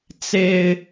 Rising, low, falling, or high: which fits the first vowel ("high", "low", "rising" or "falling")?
high